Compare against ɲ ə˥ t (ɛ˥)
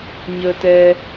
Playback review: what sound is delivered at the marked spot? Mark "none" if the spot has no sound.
ɛ˥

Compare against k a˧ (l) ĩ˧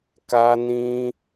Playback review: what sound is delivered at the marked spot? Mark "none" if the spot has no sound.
n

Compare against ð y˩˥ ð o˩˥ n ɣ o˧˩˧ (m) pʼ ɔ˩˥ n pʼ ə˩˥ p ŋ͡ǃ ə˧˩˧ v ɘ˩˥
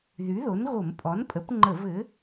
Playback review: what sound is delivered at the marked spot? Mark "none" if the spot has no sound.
m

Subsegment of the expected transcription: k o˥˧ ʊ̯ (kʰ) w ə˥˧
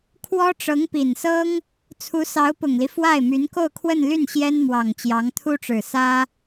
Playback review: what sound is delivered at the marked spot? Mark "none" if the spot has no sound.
kʰ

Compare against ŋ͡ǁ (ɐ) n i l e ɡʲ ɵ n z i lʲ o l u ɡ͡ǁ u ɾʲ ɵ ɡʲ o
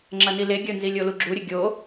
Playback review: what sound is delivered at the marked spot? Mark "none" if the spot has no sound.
ɐ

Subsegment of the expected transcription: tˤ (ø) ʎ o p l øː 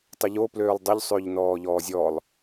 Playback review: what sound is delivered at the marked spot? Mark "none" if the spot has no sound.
ɵ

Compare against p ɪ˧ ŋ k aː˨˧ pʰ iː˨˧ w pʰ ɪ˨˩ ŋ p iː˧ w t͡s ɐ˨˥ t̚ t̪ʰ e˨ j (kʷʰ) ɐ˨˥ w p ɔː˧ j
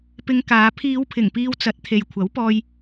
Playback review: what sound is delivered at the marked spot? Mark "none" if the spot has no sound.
kʷʰ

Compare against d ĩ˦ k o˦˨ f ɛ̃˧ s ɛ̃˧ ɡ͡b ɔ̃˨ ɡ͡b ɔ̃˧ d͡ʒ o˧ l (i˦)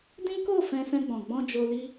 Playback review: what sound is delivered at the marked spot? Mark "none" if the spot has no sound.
i˦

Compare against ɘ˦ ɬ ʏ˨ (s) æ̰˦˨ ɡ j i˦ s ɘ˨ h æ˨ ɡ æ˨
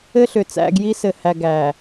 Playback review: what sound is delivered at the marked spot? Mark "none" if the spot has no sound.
t͡s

